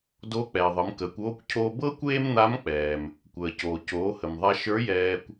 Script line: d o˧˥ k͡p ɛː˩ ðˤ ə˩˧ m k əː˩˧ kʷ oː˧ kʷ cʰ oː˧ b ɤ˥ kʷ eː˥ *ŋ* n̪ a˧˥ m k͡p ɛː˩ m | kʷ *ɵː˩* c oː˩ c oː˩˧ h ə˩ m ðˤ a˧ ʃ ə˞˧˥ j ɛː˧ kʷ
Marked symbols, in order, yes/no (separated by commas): no, no